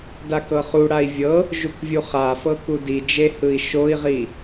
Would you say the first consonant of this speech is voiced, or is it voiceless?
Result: voiced